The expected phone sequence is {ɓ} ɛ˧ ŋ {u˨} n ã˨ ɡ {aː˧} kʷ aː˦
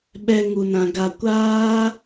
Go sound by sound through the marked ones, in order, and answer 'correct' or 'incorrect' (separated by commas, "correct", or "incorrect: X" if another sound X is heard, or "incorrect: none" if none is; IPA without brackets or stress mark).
correct, correct, incorrect: a˧